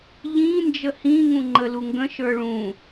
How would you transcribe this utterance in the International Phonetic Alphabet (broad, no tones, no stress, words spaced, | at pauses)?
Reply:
ʎĩ nd͡ʒəhĩŋũ ŋ͡ǃəluŋɡə̃ʃə˞ ɭũ